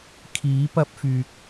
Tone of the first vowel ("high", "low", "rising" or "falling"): rising